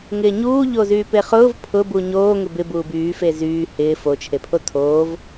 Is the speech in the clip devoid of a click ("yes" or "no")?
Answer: yes